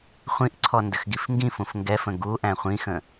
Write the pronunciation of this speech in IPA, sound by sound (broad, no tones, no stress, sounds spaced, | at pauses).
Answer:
χʷ ĩ ʔ ǀʰ ɔ n d ə x ɡ i f ŋ ɡ ĩ f ũ f ŋ ɡ ɛ f ə̃ ɡ u ʔ æ̃ χʷ ĩ x ə̃